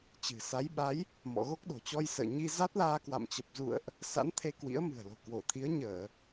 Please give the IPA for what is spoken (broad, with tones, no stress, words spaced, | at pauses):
t͡ɕɨ̤˨˩sa˨˦jɓa˨˦j | mɔ̰˧˨ɣo˦˥k̚ɗo̤˨˩t͡ɕɔ˧j sə̰ː˧˨ɲi˧za˦˥t̚laː˧ kwa̰˧˨mt͡ɕə˨˩p̚zṵ˧˨ə̯ʔ | sa̰˧˥n t̪ʰe˧kwḭ˧˥ə̯ mɨ̤˨˩ə̯lo̤˨˩kwo˧˩t̪ʰi˨˦ə̯ ɲəː˧˩˨